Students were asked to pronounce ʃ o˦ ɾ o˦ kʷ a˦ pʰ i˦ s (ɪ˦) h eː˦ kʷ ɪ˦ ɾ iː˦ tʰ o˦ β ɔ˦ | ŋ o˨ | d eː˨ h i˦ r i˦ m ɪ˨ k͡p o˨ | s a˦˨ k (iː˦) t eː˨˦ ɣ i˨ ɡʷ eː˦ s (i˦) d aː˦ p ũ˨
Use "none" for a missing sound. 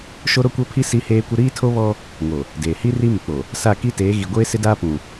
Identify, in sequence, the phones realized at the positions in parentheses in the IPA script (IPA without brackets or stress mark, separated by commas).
i˦, i˦, ɪ˦